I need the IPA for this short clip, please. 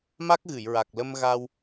m a˦˥ k̚ ɣ ɨ˨˩˨ j ɹ a˨˩ k̚ l ə˧ m ɣ a˧ w

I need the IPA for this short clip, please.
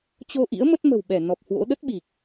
t͡ɕ o˧ ʔ ḭ˧˥ ə̯ m ə˦˥ t̚ m ə̤˨˩ w ɓ ɛ˧˩ n ɔ˨˩ p̚ h w o̰˧˥ ɗ ə˦˥ t̚ ɓ i˨˩ k̚

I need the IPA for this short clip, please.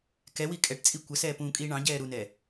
k ɛ w i kʼ ɛ ʈ t͡sʼ i kʷ ə s ɛː p ũː kʼ iː ɳ ɑ̃ ɟ ɛː ɾ u n ɛ

